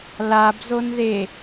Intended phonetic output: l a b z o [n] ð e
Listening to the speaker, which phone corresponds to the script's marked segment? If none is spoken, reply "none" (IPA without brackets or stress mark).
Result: n